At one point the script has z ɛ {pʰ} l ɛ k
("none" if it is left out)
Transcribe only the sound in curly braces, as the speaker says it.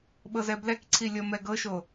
b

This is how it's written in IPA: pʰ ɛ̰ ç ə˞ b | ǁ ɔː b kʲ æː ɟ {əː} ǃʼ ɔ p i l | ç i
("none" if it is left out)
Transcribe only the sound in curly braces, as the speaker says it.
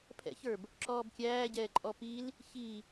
ɛː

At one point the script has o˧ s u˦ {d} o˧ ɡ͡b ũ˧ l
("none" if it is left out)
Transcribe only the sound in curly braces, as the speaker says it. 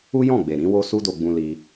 d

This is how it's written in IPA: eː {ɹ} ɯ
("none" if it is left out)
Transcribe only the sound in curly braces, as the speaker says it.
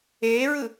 ɹ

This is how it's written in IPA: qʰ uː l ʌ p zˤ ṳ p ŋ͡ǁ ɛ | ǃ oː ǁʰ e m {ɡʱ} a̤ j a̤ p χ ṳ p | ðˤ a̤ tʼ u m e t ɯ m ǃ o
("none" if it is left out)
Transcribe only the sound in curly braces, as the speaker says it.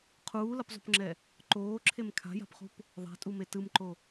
kʰ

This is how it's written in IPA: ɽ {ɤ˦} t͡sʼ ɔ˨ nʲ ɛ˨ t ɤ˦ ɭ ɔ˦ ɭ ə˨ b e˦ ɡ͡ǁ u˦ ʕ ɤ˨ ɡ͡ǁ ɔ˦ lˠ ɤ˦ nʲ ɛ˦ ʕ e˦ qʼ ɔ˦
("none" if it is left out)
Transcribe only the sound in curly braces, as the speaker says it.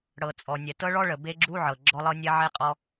ɤ˨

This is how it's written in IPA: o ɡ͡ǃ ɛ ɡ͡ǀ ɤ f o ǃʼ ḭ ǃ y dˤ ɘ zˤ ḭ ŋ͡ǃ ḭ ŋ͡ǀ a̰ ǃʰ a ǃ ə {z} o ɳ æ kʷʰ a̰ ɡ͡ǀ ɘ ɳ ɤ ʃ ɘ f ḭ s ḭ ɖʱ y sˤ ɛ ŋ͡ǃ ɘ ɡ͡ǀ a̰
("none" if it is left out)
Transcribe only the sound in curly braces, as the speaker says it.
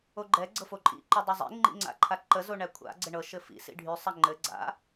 z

